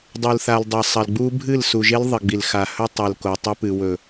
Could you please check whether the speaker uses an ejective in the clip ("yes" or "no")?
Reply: no